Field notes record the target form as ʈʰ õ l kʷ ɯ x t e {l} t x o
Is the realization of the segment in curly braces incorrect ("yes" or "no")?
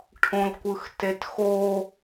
yes